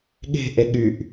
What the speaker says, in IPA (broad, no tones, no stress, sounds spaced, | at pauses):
ɠ e̤ ʔ e ɠ y ʔ